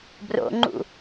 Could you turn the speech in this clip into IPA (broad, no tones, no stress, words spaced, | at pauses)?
bro̰ŋ͡ǃṵ